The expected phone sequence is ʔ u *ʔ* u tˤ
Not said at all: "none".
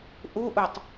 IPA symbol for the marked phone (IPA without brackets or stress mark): ʔ